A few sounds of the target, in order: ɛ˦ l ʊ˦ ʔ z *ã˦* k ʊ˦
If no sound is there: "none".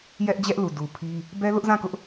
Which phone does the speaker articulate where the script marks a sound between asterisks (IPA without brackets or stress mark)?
ã˦˨